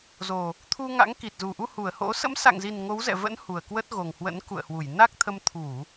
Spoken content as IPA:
zo˨˩ | t̪ʰu˧ŋa̰˧˥ŋ ki˨˩t̚zu˨˩ʔu˧ hu˧˩ə̯ho̰˧˥ sə̰˧˥msa̰˧˨ŋzi˨˩n ŋo˨˦wzɛ̰˧˨və̰˧˥n hu˨˩ə̯kwə˦˥t̚ɣo˨˩ŋhwə̰˧˥n kṵ˧˨ə̯hwu˧˩jna˦˥k̚t̪ʰə˧m t̪ʰu˧˩˨

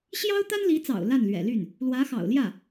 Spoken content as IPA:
ɕjɑ˥ʊ̯t̪a˥nli˧˥t͡sɑ̰˨˩ʊ̯ la˥˩nlɥɛ̰˨˩ly˥˩n | lwä˧˥xɑ̰˨˩ʊ̯ljä˥˩

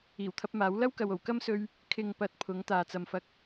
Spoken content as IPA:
iː˨˩wt̪ʰɐ˧p̚maː˨˥w lɐ˥wkɐ˨wo˨˩w kɐ˥msɵ˧ɥ | kʰɪ˨ŋ pɐ˧t̚ pʰʊ˨˥ŋ t̪aː˨t͡sɐ˨˧mfɐ˧k̚

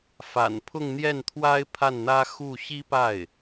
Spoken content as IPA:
fa̰˨˩npʰʊ˥˧ŋ n̪jɛ˥˩nt̪ʰwa˥ɪ̯ pʰa˥˩nn̪ä˥ xu˥˩ ɕi˥pa˥˩ɪ̯

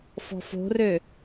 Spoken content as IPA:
fɔ̤fo̤rø

